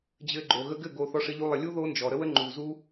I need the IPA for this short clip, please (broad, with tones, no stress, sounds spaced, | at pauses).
d͡ʑ ɘ˧ ɡ͡ǃ o˨ ɣ ə˧ ɡ ɘ˦˨ ɡ o˧ θ ɔ˧ ʂ ɘ˧ ʎ u˧ lˠ ə˨ lʲ u˦ ð o˦ n d͡ʒ ɔ˨ ɾ ə˦ w ə˦ ŋ͡ǃ u˨ z u˦